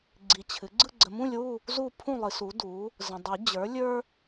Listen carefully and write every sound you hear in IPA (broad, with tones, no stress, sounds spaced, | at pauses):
ɡ͡ǀ i˨ t͡ɕʰ ɨ˩˥ ɡ͡ǀ ɯ˥˨ ɡ͡ǀ ə˨ m ũ˥˨ lʲ w u˥˨ | z u˥˨ pʰ ũ˥˨ lˠ ɨ˨˩˦ s u˩˥ d u˩˥ | z ə̃˨ dˤ ɨ˨˩˦ d͡ʑ ə˞˩˥ lʲ ə˞˦